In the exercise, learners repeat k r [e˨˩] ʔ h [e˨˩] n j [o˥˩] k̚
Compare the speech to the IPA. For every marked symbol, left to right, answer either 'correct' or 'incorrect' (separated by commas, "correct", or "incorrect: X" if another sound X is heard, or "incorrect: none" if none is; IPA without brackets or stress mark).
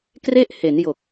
incorrect: e˥˩, incorrect: e˩˦, incorrect: o˨˩